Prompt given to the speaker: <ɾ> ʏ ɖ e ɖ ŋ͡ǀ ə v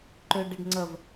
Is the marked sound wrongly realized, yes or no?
yes